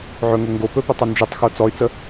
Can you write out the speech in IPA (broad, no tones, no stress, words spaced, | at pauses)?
ʕɵŋo ŋɡopɵpɵtˤɵ nd͡ʒetˤxo t͡sɔy̯t͡sə